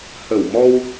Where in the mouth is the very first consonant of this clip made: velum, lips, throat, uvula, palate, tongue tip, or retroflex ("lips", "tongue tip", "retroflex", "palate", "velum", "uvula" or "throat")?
throat